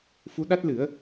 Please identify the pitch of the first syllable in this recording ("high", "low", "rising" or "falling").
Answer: rising